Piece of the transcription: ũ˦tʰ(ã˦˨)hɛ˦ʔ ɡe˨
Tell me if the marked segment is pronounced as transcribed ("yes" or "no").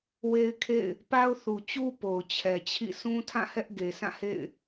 yes